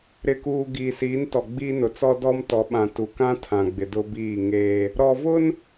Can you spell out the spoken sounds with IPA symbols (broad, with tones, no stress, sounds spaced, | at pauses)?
ɾ ɪ˨ k uː˨ ɡ iː˨ s iː˨˦ n t ɔ˨ ɡ͡b iː˦ n ʊ˨ t͡s ɔ˦ d ɔ˦ m t ɔ˨˦ ɓ ã˨ t u˨ k ã˦ tʰ ã˨ ɡ͡b ɪ˨ d ʊ˦ b iː˦˨ ŋ eː˦ | ɾ ɔ˨ v ʊ˦ n